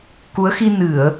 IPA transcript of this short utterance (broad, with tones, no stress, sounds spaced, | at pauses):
k u˨˦ ə̯ x i˧ n ɨ˧˩˨ ə̯